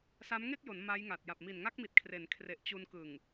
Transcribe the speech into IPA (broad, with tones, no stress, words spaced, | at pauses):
sa˦˥mŋe˥˩k̚jo˩˦n ma˦˥jŋa˨˩t̚ ja˨˩p̚mi˨˩nŋa˦˥k̚mi˨˩t̚ kʰre˩˦n kʰre˨˩ʔt͡ɕu˧nkɯ˨˩ŋ